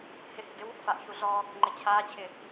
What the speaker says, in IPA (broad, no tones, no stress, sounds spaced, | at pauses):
h ɪ h ɪ ɡ ɪ w | f a ʔ ç u ɮ ɔ | ŋ͡ǃ ɪ t͡ɕʰ aː t͡ɕʰ ɪ